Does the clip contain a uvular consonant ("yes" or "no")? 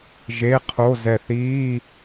yes